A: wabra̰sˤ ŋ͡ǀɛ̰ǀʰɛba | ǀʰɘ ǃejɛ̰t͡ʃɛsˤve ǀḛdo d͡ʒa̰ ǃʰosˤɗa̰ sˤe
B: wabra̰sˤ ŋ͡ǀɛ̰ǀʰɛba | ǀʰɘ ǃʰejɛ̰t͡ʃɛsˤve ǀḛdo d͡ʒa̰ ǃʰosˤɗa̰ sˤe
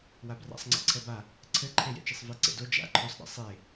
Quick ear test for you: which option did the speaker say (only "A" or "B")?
B